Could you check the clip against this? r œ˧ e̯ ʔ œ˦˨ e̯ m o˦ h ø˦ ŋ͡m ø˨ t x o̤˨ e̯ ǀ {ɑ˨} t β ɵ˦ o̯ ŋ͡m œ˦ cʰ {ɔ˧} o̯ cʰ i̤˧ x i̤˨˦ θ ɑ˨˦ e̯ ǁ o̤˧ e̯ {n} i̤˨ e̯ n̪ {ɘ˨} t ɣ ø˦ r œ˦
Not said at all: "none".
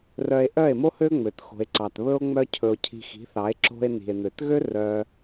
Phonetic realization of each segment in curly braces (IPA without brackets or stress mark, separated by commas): ɑ˨, ɵ˧, n, ø˨